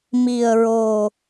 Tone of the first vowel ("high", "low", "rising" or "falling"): low